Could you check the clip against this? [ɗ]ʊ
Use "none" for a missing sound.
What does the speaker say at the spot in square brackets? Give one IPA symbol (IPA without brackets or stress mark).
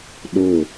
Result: ɗ